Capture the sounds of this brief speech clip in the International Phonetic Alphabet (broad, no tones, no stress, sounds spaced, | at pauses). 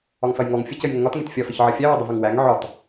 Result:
ɒ ŋ f ɐ j ŋ ɔ ŋ fʲ ə c ə j ŋ ə ŋ ɒ t ŋ e t fʲ ɐ f ə ç ʕ ɐ fʲ æ w ɒ dˤ ə v ɐ ŋ w æ ŋ ʕ ɒ t